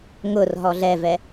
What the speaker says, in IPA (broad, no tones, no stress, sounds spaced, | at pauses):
ŋ ʊ r ɦ ɔ ɮ ɛ v ɛ